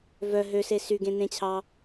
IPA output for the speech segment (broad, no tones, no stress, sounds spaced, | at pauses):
v œ ɦ ø s e s y ɡ ẽ n ẽ t͡ɕʰ ɑ